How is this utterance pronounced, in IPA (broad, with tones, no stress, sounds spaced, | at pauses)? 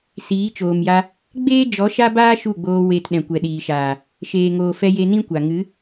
s iː˨˦ t͡ʃ oː˨ m j a˧ | ɡ͡b eː˦ d͡ʒ ɔ˨˦ ʃ a˦ b aː˦ ʃ u˦˨ ɡ͡b oː˧ w e˧ t ɗ ɛ̃˨ kʷ ɛ˨ ɗ iː˨ ʃ aː˨ | ʃ eː˨ ŋ oː˨ f ɛ˧ j e˧ n ĩ˦ kʷ a˨ ŋ ɨ˨˦